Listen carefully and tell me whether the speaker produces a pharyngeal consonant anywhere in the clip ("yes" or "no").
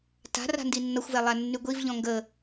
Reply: no